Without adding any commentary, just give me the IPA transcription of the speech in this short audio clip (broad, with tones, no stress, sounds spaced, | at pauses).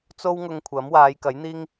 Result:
t͡s o˥ w ŋ ʊ˧ ŋ kʷʰ ɐ˨˥ m w aː˨˧ j k ɐ˨˥ j n̪ iː˥ ŋ